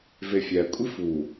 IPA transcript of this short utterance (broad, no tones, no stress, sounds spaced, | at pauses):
v e fʲ æ kʷʼ i f u